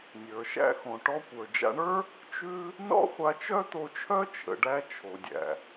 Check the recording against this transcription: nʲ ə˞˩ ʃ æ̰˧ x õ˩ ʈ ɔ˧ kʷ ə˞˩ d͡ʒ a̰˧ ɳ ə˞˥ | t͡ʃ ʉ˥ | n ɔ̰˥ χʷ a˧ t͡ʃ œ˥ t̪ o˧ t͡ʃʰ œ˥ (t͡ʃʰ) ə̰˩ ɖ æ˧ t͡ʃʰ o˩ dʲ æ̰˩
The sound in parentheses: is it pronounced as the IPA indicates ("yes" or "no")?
yes